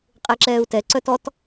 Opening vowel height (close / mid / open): mid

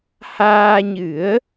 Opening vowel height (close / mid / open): open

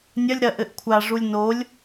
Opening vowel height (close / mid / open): open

